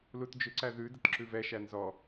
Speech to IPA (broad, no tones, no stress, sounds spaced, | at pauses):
l u t d͡ʒ ʏ ǀ æ ð ʉ d ə t ǁ ʉ v ɛ ʃ æ n z ɔ